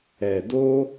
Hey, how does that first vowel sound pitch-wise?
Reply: low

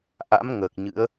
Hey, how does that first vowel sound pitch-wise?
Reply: rising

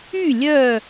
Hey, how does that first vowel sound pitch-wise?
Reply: falling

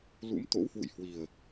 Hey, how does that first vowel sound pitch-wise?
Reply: rising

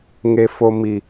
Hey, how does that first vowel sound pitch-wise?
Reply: low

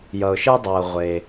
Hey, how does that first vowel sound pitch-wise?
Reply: low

